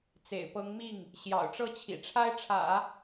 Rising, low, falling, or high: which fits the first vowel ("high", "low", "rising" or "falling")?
low